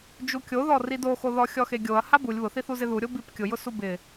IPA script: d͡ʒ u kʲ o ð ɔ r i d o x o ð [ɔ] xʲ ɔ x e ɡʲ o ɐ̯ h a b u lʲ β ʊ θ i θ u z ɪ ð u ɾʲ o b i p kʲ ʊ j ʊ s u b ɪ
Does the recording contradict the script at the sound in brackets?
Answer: no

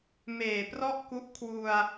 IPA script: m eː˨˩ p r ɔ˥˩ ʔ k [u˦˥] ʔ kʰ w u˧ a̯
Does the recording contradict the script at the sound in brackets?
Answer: no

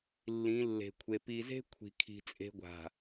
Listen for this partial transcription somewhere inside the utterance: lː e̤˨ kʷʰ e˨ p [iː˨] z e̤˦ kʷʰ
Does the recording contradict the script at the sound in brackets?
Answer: yes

